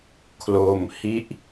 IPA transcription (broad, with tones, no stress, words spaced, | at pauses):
kʰlo˧m hi˦˥ʔ